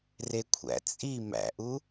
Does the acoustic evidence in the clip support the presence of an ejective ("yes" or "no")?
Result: yes